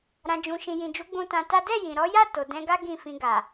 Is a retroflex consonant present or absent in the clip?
absent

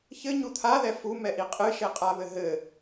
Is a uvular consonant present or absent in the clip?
present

